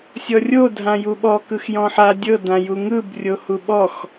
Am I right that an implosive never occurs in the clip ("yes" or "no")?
no